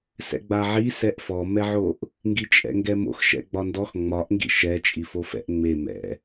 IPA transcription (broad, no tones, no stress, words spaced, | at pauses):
sɛ̰ɡ͡baʕi sɛʔfɔmɛʕoʔ | ŋɡit͡ʃʼɛ̰ŋɡɛmo̰x ʃɛ̰ɡ͡bɒndɔx ŋ͡mɒʔŋɡḭ ʃɛ t͡ʃʼifofɛ̰ʔ ŋ͡me mɛ̰